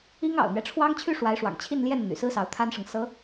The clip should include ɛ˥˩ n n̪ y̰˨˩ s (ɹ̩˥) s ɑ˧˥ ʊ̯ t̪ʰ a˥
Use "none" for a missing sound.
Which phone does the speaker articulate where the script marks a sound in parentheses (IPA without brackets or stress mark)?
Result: ɹ̩˥